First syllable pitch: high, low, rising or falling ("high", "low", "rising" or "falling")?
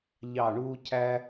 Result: falling